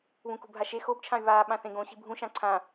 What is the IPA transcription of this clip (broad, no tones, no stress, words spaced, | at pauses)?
βũkṳbʱaʃe xobt͡ʃʰãy̯ βaːɓãθẽɡõ ɕi̤bʱũ ʃãǀʰã